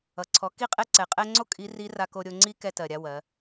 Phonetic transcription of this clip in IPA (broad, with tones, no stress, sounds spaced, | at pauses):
ʌ˩ ǀʰ ɔ˩˧ k i˧˥ qʼ ɛ˧ ǀ ɛ˩ qʼ ɛ˧ ŋ͡ǀ o˥ kʼ i˧˥ r i˧˥ r a˧ k o˧ ɾʲ o˧ ŋ͡ǀ i˥ k ɛ˧ t ɜ˩ ɾʲ a˧ w ɜ˩˧